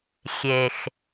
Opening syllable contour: low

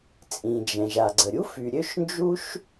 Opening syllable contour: low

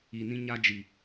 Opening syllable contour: low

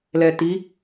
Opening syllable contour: low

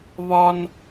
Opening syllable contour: high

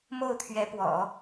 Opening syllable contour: falling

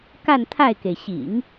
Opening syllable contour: falling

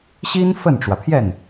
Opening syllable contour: high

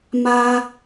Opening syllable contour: low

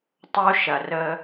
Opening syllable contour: high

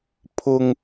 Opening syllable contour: high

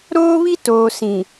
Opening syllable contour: high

